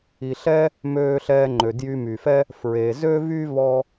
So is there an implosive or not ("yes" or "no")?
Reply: no